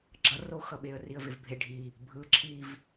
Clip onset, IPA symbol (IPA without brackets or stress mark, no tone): ɡ͡ǁ